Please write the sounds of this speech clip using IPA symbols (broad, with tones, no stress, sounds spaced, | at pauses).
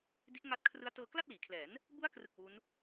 d i˦˥ ʔ ŋ a˦˥ t̚ kʰ r ɯ˦˥ a̯ t ɤː˧ k l a˥˩ t̚ l iː˩˦ kʰ l ɛː˩˦ n | b u˦˥ a̯ k r ɯ˨˩ k̚ w u˦˥ n